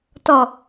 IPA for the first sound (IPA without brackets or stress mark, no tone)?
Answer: t